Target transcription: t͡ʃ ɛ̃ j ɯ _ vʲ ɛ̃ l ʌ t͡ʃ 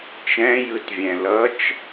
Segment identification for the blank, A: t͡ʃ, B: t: B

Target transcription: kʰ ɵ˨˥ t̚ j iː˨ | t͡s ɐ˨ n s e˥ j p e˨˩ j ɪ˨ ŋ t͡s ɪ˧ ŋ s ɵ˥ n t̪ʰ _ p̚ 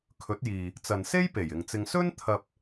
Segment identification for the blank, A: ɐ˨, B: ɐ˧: B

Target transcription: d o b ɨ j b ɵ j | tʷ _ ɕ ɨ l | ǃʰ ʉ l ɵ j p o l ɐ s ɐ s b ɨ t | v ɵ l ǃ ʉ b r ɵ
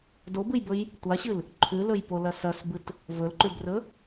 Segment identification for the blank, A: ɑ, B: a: B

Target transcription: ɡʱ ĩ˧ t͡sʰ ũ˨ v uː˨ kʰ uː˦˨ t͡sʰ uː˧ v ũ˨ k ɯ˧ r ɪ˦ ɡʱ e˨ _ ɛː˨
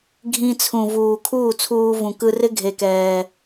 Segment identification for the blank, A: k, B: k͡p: A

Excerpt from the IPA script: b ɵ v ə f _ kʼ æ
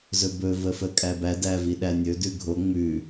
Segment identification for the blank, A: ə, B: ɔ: A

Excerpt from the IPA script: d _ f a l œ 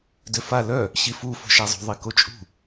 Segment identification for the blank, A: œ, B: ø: B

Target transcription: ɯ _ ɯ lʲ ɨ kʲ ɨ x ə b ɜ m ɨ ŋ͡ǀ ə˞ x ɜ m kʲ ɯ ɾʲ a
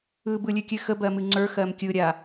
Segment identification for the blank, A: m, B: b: B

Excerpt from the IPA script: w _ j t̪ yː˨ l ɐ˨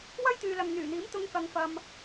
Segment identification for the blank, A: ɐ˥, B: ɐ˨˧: A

